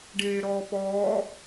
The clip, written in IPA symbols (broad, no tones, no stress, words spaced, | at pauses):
ɖeːɾɔːpɔː